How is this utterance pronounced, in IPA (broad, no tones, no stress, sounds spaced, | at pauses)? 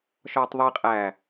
ʃ ɒː tˤ ðˤ i qʼ æː